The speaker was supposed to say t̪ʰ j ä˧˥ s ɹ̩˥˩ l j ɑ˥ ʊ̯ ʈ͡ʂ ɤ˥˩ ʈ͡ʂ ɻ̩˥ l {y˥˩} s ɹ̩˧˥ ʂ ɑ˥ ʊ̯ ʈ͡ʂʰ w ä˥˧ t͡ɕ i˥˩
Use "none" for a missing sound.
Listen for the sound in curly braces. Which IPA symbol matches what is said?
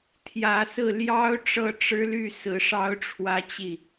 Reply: y˥˩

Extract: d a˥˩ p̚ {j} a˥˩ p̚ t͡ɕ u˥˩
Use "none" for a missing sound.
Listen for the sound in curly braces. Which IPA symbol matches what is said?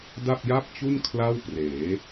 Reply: j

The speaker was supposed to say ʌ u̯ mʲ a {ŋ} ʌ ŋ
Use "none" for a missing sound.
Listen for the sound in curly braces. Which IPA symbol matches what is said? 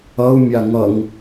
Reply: ŋ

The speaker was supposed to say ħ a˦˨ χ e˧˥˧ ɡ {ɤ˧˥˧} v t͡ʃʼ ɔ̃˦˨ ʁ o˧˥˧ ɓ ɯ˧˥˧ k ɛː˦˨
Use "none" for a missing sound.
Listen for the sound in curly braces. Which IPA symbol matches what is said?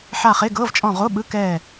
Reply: ɤ˧˥˧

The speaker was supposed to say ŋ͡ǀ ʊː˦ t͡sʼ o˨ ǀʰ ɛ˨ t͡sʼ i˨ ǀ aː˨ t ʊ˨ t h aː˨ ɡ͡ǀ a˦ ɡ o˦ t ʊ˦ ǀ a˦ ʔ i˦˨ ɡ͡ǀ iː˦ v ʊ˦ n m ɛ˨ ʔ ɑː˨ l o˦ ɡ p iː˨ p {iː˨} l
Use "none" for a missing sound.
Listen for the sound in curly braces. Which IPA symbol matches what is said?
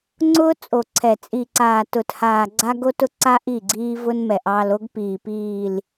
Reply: iː˨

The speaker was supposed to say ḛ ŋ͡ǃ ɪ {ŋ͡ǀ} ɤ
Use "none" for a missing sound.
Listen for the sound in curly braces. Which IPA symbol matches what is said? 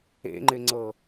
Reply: ŋ͡ǀ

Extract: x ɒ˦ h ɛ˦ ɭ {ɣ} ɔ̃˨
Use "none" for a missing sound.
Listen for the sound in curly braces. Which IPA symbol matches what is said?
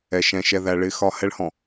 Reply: h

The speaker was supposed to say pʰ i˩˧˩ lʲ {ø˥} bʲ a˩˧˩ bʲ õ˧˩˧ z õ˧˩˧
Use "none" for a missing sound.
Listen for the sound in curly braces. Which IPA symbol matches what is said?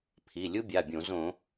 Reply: u˥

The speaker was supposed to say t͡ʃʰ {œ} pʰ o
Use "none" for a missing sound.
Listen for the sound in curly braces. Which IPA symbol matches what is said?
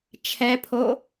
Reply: ɛ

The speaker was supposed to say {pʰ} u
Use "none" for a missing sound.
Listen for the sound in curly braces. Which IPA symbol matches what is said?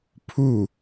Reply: pʰ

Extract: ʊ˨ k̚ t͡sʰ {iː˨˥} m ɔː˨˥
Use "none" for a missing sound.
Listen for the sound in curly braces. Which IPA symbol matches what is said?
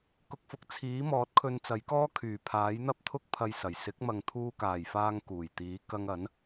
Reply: iː˨˥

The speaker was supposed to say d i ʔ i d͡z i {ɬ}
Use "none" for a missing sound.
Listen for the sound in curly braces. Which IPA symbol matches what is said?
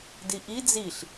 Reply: ɬ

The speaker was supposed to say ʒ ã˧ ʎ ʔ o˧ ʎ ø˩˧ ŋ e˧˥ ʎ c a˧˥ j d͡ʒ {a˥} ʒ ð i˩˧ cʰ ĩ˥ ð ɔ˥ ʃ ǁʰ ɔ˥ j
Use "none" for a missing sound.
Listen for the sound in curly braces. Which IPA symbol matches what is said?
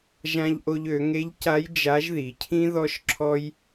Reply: a˧˥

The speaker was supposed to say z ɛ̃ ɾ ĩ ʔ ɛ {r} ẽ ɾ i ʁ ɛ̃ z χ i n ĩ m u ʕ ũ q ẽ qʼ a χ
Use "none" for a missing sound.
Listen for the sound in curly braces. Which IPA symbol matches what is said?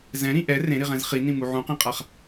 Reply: r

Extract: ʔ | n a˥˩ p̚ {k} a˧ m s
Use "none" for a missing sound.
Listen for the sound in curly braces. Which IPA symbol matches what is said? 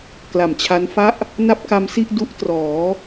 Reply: k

